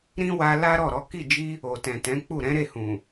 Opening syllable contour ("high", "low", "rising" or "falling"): high